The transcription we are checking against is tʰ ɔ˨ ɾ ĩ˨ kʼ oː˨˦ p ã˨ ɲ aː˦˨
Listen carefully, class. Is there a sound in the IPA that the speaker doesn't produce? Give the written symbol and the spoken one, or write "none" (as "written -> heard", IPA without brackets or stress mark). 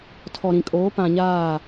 none